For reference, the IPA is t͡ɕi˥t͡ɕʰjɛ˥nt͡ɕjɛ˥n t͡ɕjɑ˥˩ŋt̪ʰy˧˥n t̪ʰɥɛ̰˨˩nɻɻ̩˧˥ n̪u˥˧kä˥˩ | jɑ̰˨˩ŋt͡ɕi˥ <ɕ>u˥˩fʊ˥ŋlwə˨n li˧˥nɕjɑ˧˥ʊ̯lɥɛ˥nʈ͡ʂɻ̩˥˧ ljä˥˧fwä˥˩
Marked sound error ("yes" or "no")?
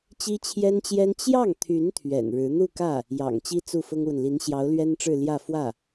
yes